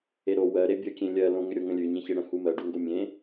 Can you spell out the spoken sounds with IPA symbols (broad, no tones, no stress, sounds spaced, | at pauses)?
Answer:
e ɾ o w ɜ ɾ e bʲ ə kʲ ẽ lʲ ɜ l õ ŋ ʏ ɾʲ o ŋ ə̃ lʲ ʉ ɲ ẽ ç e ɽ ə̃ h u m ɜ ɖ u ŋ ɡ o mʲ ẽ